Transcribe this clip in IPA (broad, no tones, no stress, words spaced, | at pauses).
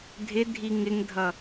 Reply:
dʱɪ dʱiŋɪŋdʱʌ